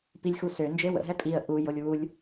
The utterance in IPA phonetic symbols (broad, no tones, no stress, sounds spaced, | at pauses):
p i lʲ x u s ø n d͡ʒ e w ə̰ ɦ ɛ pʼ i ə̯ ʔ u j o lʲ w u lʲ